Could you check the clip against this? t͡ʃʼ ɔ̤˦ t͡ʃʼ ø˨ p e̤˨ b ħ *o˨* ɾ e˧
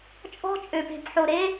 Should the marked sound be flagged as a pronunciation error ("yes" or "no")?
no